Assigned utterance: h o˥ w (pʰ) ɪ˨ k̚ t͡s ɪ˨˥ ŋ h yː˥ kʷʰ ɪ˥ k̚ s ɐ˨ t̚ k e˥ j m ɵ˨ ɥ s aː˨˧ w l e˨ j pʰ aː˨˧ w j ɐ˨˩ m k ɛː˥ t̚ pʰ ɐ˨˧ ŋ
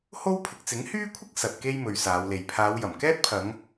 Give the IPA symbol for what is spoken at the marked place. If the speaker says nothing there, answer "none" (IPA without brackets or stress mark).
pʰ